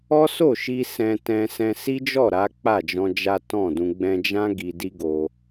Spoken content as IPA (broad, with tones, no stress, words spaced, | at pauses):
ɔ˦ so˦˨ʃi˧ sɛ̃˧ tɛ̃˧sɛ̃˧ si˦d͡ʒɔ˦˨ ɾa˨˦k͡pa˦˨d͡ʒɔ̃˧ d͡ʒa˦tɔ̃˦˨dũ˧ ɡ͡bɛ̃˧d͡ʒã˦ ɡi˧di˦ɡo˧